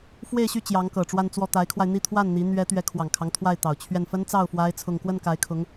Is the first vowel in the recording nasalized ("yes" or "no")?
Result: no